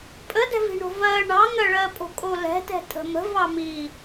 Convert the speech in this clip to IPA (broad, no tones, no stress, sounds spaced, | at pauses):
pʼ ə d ɛ̤ v i̤ ɳ o̤ v ɜ ɳ ɑ ŋ ɜ ɭ ɜ pʼ o̤ kʼ o l ɛ̤ t ɛ̤ tʼ ə̤ m ə̤ v ɑ m i